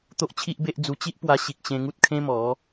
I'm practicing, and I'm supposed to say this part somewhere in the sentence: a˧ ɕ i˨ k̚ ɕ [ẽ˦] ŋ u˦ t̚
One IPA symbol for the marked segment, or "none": ẽ˧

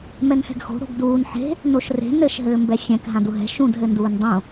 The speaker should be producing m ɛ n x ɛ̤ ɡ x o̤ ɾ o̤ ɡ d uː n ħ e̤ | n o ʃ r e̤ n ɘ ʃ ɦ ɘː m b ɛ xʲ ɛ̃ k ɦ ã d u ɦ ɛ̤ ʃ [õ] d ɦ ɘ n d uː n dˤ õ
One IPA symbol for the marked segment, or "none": ũ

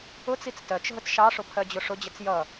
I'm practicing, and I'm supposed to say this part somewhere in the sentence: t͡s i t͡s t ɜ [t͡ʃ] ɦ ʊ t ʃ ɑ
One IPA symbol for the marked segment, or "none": t͡ʃ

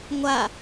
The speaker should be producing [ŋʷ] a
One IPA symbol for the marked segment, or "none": ŋʷ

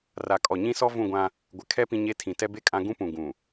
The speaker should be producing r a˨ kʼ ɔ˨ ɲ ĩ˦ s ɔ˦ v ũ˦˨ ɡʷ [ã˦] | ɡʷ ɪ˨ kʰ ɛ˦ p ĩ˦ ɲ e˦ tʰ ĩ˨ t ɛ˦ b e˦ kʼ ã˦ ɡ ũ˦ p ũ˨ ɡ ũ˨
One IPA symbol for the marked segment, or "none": ã˦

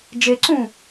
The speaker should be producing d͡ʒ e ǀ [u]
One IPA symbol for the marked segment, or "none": ũ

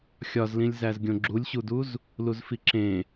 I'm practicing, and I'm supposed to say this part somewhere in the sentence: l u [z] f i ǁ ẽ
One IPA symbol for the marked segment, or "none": z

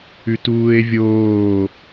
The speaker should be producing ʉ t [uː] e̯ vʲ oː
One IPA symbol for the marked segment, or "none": uː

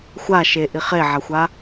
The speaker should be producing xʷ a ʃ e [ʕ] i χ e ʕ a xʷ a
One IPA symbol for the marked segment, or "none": ʔ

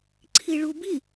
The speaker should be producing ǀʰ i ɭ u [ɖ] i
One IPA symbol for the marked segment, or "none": b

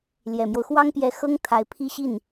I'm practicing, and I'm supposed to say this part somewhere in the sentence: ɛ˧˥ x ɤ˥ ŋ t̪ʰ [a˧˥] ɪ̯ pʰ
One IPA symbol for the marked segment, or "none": a˧˥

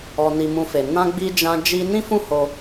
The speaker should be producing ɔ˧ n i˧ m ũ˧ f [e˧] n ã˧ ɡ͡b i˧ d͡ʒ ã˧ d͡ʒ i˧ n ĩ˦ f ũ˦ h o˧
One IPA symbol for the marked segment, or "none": e˨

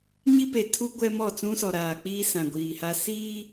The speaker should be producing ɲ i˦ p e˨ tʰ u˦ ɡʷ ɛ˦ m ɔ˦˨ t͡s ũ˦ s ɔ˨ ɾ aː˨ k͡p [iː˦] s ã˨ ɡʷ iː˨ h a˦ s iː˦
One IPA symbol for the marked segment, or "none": iː˦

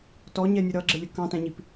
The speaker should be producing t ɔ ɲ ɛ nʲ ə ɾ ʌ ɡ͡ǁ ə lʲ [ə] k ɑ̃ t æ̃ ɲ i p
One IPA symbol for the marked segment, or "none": ə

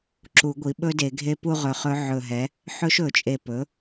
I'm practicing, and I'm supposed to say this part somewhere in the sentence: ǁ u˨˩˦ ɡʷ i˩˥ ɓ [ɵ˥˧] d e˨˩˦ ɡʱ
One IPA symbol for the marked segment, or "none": ɵ˦˥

